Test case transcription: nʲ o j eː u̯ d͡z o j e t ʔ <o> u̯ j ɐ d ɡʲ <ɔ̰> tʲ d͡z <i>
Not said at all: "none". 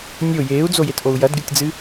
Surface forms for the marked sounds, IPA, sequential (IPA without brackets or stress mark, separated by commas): o, ɔ, ɨ